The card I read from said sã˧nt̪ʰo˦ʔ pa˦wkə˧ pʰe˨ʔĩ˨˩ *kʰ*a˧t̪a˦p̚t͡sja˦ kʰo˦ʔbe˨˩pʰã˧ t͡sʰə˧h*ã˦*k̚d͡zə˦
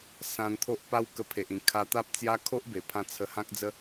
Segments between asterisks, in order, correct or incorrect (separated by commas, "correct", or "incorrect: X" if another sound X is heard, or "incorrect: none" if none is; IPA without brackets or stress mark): correct, correct